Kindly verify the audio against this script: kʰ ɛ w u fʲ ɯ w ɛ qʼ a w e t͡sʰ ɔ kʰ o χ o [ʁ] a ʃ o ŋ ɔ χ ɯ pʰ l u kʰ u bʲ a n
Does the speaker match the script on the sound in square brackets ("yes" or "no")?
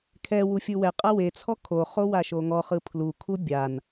no